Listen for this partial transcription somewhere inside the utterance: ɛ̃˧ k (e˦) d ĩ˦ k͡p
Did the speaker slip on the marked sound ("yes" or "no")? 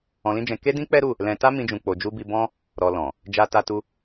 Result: no